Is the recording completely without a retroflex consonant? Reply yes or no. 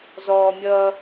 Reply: yes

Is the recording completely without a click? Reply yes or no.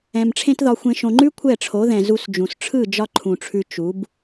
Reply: no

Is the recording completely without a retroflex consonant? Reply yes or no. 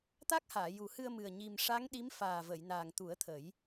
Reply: no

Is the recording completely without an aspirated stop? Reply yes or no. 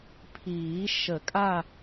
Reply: no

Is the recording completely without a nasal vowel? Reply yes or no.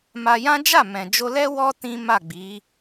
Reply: no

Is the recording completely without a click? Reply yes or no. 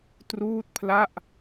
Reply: yes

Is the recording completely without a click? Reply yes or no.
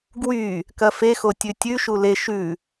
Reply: yes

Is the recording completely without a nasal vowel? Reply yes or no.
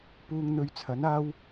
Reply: yes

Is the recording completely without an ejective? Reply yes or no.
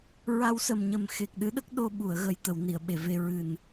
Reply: yes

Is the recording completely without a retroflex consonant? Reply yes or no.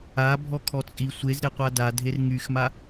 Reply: yes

